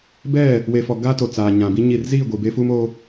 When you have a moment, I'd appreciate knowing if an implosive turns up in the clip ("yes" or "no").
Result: no